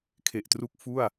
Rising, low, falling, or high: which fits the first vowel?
low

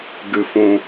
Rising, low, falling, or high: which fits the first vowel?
low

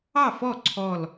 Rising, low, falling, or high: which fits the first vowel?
falling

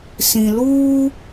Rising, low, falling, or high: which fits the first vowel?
low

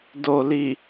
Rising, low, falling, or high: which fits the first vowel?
low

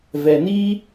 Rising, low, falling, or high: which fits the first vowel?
low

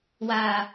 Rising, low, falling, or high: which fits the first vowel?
low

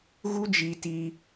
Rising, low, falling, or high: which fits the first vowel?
high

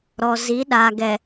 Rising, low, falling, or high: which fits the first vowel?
low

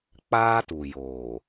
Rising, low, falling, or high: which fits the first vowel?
high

